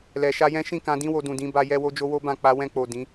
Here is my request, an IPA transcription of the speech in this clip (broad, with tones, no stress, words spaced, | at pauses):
lɛ˨ʃa˧jɛ̃˦ ʃĩ˦˨kã˧dĩ˦wo˧ dũ˨dĩ˨˦ba˧ jɛ˧wo˧d͡ʒo˧ wo˦bã˦˨k͡pa˧ wɛ̃˧k͡po˨ dĩ˨˦